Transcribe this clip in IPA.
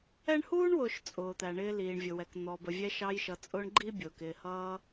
ɛ˦ ɳ h uː˥ ɳ w ʊː˨ ʃ t͡sʼ ʊː˩ t̪ æ˩ ɳ ɪː˨ l iː˩ ɳ vʲ ʊ˩ w ɛ˩ k n̪ ɔ˩ b ə˩ vʲ ɛ˨ ʃ ɑ˨ j ʃ ʌ˩ t͡sʼ ʊː˨ ɳ ɡ͡ǃ i˦ bʲ ʊː˩ k ɪː˩ h ʌː˨

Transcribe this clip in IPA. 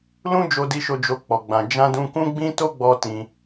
l ũ˦ d͡ʒ o˧ d i˧ ʃ o˧ d͡ʒ o˦ k͡p ɔ˧ ɡ͡b ã˧ d͡ʒ ã˦ d ũ˦ k ũ˦ ɡ͡b ĩ˦ t o˦ ɡ͡b ɔ˧ t ĩ˧

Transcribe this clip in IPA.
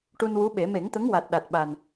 ʈ u˧ n w u˧˥ ɓ e˨˩˦ m e˨˩˦ ŋ t̪ ə˧˥ ŋ w a˨˩ t̚ ɗ a˨˩ t̚ ɓ a˨˩ n

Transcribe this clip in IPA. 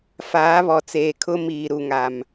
f aː˨˦ β ɔ˨ t͡s eː˨ kʰ ʊ˦ m iː˨ ɾ u˨ ŋ a˨ m

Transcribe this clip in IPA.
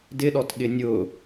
d ɪ ɗ ɔ t ɠ ɪ nʲ ʊː

